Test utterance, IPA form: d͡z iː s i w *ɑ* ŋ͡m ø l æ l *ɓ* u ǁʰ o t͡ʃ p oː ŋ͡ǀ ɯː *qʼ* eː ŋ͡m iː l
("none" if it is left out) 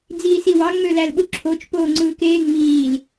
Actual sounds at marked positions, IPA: ɑ, ɓ, k

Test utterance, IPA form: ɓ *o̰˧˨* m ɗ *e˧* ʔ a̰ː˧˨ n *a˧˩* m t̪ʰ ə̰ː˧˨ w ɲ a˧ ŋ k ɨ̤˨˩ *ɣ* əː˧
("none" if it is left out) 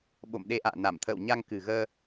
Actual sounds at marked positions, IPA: o̰˧˨, e˧, a˧˩, ɣ

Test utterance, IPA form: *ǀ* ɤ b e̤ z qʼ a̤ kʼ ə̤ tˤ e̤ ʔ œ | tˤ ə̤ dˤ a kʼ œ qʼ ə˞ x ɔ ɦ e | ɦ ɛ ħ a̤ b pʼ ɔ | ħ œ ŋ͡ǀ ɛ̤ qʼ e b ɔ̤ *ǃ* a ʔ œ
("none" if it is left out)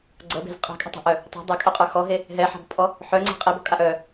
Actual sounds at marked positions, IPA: ɡ͡ǀ, kʼ

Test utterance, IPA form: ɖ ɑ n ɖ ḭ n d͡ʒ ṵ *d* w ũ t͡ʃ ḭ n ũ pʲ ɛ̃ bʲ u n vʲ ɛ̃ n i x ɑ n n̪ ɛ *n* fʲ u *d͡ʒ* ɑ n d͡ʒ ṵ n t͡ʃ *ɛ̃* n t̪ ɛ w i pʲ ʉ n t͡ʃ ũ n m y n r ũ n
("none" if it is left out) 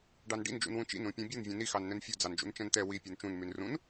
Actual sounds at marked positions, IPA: n, n, d͡z, ɛ̃

